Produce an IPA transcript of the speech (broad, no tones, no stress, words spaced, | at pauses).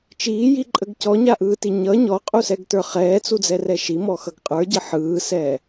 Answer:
t͡ʃiːjiǃʼəɡ cɔɲaʔɯːti ɲʌ ɲɔqʼusɛɡtə˞ χɛːt͡sud͡zɛrɛ ʃimɔxʌɡ qʼə˞ɟə ħɯːsɛː